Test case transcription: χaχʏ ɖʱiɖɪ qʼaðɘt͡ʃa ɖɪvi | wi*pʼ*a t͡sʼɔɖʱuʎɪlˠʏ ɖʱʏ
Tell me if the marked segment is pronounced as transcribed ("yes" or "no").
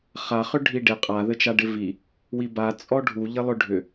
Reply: no